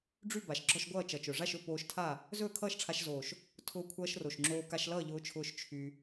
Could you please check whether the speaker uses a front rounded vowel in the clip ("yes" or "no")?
yes